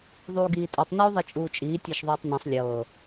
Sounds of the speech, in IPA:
ðˤ uː ɡ iː tʼ u tˤ n uː ðˤ i t͡ʃʼ uː t͡ʃʼ iː tʲ a ʃ ðˤ uː tˤ n ĩ sˤ lʲ ɤː

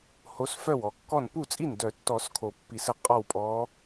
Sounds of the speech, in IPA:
h o˨˥ s f œ˥˩ w ɔ˨˩˦ kː ɔ˥˩ n p u˥˩ t͡sʼ i˥˩ n d œ˨˩˦ tː ɔ˨˩˦ s kʰ o˨˩˦ pː i˨˩˦ s ə˨˥ qʼ ɔ˥˩ w pʼ ɔ˨˥

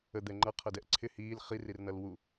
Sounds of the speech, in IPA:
ə d̪ ɛ ŋ͡ǃ ʌ qʰ ʌ d ɛ ʔ ǀʰ ɪ h iː l χ i r i r n ʌ l w u

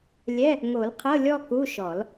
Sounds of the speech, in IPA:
lʲ ɛ˧˥˧ | ŋ o˨˩˦ l qʰ ɤ˧˥˧ lʲ ɔ˥˧ k u˧˥˧ ʃ ɔ˨˩˦ l

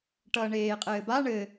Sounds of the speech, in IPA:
ʈ ʌː ɳ eː qʼ ɘː b a ɳ ɘ

